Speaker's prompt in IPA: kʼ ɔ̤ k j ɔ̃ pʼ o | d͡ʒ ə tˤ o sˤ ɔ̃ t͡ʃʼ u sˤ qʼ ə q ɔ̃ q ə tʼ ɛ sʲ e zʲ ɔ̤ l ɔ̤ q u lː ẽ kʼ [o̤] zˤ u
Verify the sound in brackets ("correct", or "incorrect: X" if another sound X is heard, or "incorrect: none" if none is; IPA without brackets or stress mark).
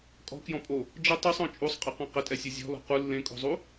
correct